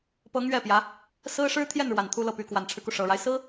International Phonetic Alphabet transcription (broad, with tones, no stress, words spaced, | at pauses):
pɤ˧˥ŋ ɥɛ˥˩pjä˧˥ | sɹ̩˥ ʂɻ̩˥ t̪ʰjɛ˥˩nɻwa˨˩n t̪ʰu˥lɤ˥˩py˧˥ kwa˨˩nʈ͡ʂʰɻ̩˦ku˩ ʂɤ˨˩ɻa˦ɪ̯ sɹ̩˥